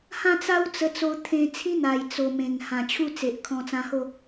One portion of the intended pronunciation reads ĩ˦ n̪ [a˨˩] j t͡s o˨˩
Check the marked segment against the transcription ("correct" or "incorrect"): correct